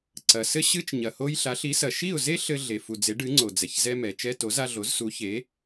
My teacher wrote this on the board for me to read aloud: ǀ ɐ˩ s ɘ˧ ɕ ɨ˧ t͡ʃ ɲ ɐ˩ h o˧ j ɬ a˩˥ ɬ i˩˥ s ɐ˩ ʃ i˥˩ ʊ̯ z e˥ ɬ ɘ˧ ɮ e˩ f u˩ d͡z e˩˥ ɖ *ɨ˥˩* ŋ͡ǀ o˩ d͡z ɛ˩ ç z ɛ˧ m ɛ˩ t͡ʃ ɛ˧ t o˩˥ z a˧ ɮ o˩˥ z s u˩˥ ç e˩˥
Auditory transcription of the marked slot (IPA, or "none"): ɨ˩˥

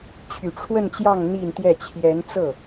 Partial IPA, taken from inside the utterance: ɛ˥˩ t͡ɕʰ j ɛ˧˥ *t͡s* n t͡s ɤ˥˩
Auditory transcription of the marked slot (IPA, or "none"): none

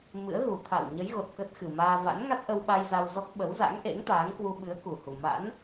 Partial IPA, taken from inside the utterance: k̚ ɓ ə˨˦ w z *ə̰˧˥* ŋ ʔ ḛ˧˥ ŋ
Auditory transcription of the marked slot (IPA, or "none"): a̰˧˥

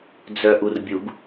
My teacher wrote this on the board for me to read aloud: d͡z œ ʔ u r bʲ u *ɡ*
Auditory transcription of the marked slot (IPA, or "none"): ɡ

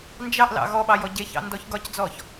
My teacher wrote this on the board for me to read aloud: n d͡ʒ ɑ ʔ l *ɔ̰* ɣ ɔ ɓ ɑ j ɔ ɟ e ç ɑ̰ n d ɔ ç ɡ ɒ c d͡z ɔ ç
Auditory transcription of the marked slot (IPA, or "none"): ɑ̰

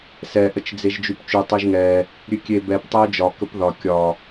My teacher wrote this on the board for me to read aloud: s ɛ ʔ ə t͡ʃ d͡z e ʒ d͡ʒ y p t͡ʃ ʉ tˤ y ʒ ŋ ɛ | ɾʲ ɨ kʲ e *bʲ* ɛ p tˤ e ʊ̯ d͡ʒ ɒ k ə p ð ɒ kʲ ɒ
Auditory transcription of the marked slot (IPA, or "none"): b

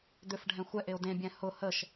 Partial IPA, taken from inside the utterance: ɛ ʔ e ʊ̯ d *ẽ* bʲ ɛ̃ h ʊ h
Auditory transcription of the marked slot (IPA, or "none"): ẽ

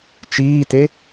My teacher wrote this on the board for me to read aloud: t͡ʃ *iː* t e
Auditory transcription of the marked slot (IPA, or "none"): iː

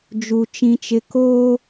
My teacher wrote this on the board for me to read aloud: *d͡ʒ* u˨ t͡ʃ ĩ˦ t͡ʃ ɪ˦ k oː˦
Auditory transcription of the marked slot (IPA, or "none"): d͡ʒ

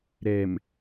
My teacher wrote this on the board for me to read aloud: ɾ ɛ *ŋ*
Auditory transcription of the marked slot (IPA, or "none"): m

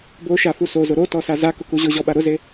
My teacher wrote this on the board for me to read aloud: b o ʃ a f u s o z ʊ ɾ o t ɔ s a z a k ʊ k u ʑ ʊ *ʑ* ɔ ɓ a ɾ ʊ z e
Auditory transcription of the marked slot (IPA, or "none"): ʑ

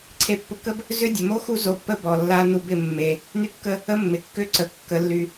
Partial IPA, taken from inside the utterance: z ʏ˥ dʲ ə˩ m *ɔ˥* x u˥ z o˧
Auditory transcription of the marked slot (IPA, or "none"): o˥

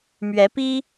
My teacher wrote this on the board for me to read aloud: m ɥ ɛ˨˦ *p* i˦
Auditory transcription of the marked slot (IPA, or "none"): p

